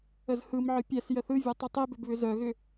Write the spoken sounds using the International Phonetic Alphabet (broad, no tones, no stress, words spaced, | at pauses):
əzhɯmʕɯ pʲɛs jəθɯvʲo tˤitˤibʏb βʏzœɣʏ